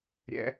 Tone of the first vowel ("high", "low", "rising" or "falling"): high